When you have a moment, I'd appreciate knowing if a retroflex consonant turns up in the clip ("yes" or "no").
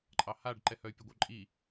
yes